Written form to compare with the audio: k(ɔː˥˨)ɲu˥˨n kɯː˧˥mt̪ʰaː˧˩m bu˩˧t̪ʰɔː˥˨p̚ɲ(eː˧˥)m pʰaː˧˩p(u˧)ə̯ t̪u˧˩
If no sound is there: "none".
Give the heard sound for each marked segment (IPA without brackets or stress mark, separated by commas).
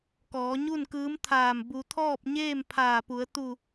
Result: ɔː˩˧, eː˥˨, u˩˧